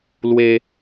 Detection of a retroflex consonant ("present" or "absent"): absent